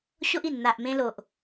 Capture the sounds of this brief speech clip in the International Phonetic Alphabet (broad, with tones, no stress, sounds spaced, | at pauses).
ɕ o˦ ʔ i˨˩ n n̪ a˨ ʔ m ẽ˧ l o˨ ʔ